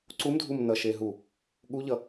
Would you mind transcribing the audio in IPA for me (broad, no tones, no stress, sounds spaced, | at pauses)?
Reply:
ǀ u m dʱ u m n ʌ ʃ e ɦ u | ɠ u ʎ ʌ